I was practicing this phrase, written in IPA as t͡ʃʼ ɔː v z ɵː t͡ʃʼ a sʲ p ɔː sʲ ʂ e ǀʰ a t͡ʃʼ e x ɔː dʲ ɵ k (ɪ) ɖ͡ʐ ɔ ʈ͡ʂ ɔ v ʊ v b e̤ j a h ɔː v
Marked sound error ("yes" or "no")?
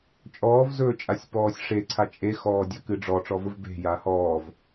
yes